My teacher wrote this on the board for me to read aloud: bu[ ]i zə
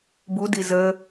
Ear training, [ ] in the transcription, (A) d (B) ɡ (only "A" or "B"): A